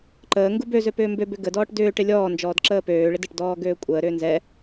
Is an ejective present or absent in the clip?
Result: present